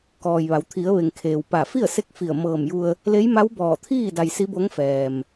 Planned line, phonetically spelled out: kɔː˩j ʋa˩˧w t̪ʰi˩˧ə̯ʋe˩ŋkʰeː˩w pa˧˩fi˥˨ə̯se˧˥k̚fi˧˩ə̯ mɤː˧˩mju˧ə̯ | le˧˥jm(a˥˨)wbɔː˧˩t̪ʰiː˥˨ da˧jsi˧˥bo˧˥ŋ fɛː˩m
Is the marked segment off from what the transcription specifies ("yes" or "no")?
yes